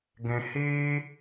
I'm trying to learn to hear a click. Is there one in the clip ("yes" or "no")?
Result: no